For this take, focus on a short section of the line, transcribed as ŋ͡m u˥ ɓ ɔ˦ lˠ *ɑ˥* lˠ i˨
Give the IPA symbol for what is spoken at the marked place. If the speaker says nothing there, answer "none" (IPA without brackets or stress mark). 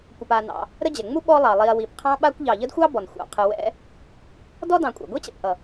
ɑ˩